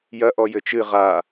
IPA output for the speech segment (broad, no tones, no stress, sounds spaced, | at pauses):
j ɐ ʔ ɔ j ɘ t͡ʃ ɨ ʁ a